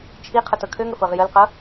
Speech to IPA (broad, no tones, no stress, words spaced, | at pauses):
t͡ʃʰi qʰɤtɤkʰøŋə fɤʁjəlqɤ